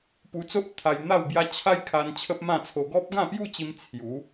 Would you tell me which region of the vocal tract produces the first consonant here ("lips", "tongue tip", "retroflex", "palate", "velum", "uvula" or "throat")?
lips